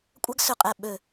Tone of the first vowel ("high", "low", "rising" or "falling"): high